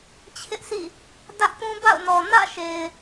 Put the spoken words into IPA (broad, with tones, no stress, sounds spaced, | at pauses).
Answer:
t͡ɕʰ ɪ˦ ʔ s ḭ˦˨ | d ä˦ ʔ p ũ˦ b a̰˦˨ ʊ̯ n ɔ˨ n ä̰˦˨ ʃ e˨ ɪ̯